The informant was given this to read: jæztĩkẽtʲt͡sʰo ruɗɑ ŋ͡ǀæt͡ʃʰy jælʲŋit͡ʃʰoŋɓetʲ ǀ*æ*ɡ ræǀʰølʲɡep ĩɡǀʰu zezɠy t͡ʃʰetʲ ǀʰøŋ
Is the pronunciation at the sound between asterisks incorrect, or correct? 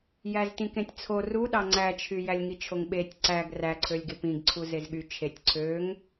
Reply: correct